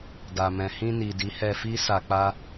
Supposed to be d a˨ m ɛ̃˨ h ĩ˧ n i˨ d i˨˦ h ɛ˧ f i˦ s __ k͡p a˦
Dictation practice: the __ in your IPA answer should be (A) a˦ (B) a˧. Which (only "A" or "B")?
B